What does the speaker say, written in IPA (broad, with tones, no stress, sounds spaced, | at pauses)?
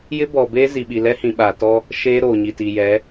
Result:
j ɪ˦ b ɔ˨ b eː˦ z i˨ ɓ i˨ l ɛ˦ h ĩ˨ ɓ a˨ t ɔ˦ | ʃ eː˦ ɾ oː˨ ɲ i˨ t i˨ j ɛ˨˦